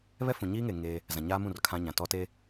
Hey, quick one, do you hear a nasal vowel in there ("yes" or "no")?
yes